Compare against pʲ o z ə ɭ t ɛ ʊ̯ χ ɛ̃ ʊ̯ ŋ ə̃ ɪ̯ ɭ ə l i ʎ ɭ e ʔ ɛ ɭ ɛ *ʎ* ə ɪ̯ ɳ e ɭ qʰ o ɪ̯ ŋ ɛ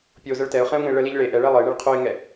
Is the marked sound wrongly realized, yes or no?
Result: yes